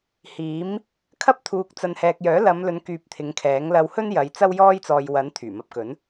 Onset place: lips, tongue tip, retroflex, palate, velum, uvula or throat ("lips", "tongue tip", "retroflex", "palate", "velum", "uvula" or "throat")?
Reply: throat